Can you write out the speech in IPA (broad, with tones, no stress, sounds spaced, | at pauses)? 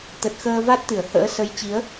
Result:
t̪ ə˨˩ t̚ x əː˧ v a˦˥ t̚ t̪ ɨ˧˩ ə̯ h ə̰ː˧˥ s ə˨˦ j t͡ɕ i˨˦ ə̯